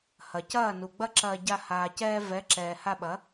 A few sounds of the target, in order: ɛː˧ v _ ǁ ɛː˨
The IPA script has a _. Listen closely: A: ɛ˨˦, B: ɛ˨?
A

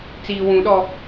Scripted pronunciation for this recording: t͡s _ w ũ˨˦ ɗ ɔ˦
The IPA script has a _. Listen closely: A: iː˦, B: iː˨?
B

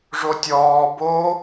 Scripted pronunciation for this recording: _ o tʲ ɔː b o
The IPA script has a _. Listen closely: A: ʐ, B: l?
A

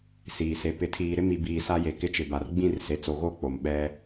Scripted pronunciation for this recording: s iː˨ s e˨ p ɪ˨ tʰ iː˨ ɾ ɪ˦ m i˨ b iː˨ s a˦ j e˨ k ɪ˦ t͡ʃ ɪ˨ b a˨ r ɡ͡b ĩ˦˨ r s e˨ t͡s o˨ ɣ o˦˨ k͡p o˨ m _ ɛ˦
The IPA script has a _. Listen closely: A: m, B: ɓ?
B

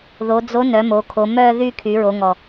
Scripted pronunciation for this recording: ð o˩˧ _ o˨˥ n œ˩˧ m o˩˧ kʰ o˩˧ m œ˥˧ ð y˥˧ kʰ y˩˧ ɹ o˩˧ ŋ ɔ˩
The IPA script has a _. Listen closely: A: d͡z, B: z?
A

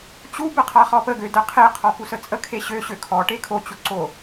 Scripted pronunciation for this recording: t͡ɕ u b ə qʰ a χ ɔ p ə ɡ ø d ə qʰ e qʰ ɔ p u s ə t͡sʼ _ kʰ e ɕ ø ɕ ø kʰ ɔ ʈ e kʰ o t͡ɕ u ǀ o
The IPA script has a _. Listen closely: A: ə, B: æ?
A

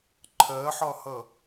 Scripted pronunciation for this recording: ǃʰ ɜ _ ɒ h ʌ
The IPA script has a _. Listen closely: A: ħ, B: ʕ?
A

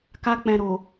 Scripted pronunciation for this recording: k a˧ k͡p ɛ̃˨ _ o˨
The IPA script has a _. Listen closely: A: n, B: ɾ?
B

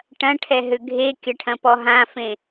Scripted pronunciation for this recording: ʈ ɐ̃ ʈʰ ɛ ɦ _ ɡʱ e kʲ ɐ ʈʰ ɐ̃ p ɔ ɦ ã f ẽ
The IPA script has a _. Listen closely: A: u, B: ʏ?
B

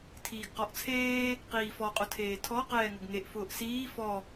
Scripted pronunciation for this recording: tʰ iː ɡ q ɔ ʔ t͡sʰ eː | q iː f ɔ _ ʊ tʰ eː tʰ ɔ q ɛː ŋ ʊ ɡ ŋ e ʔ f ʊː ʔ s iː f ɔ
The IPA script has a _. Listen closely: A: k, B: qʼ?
B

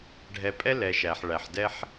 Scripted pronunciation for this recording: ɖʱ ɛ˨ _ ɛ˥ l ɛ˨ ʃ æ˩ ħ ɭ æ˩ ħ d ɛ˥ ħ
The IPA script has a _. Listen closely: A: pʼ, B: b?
A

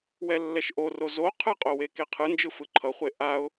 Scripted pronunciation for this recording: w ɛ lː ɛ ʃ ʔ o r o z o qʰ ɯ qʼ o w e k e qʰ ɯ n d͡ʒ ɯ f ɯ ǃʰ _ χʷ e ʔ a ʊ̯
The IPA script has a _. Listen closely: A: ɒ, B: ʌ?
B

